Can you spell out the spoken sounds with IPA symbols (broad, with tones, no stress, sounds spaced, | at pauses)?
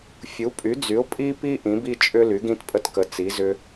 fʲ u˨˥ pʼ y˨˥ d͡z y˨˥ ʊ̯ pʼ i˥ p i˥ ʔ ĩ˨˥ b i˥ t͡ʃʼ ʏ˥ l y˨˥ ɡ ĩ˥ t pʼ ə˥ t k ə˨˥ t͡s i˨˥ z ʏ˥